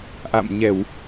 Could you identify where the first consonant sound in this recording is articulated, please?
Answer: glottal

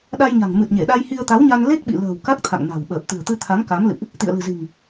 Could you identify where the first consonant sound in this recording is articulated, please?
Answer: alveolar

